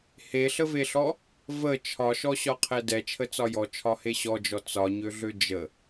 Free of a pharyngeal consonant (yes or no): yes